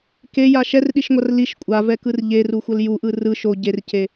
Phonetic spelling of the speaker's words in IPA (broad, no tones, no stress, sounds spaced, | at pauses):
k e j a ʃ ɛ r ɗ i ʃ ŋʷ a r l i ʃ kʷʼ a v ɛ k ɯ r ʎ e r u xʷ ʌ l j u ʔ ɯ r ɯ ʃ o ɟ e r c e